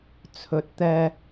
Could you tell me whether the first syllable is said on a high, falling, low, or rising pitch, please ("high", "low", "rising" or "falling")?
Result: low